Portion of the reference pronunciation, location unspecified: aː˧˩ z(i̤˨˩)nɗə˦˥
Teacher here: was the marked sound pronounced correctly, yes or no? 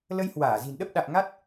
yes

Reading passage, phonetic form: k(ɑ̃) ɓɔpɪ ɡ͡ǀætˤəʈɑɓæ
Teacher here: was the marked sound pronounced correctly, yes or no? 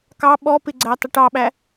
no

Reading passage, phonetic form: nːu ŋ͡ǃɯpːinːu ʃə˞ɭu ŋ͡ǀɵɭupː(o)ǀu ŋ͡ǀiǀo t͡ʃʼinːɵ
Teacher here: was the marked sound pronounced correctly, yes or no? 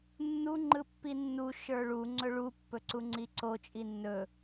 no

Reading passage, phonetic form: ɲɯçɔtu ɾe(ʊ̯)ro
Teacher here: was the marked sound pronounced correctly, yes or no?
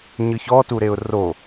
yes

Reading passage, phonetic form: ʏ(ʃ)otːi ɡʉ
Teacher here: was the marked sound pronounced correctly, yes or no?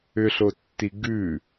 no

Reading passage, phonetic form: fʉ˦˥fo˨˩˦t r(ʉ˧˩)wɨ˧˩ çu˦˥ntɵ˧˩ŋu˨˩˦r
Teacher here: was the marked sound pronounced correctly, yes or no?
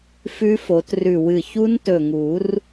yes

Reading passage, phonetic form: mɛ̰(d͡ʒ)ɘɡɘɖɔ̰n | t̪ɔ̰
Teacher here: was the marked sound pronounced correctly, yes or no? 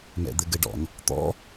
no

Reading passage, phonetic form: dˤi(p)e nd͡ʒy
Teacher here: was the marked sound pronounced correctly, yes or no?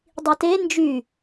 no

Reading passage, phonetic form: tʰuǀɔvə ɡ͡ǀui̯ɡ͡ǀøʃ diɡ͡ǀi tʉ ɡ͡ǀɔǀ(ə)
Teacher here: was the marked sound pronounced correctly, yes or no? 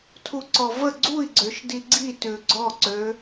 no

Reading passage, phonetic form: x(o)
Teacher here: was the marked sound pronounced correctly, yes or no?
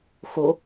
yes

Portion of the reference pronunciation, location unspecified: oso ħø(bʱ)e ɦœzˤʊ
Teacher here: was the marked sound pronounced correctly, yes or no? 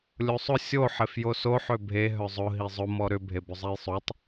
yes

